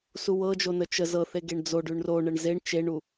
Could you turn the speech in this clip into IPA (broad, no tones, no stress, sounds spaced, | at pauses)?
s u w ɤ d͡ʒ o n ə t͡ʃ ə z ɤ θ e ɡ e ɳ d͡z o ɖ ʉ ɳ r o ɳ ə ɳ z e ɳ t͡ʃ e ɳ u